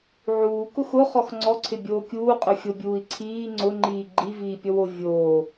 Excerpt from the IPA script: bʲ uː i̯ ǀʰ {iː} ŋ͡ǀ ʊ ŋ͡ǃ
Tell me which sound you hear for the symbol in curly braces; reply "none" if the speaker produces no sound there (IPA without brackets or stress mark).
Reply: iː